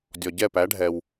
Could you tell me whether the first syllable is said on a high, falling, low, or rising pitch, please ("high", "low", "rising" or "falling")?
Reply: low